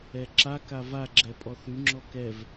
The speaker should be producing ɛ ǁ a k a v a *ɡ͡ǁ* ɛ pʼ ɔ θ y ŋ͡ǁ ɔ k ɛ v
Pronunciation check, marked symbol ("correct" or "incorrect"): correct